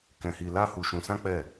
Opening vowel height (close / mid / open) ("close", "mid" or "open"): mid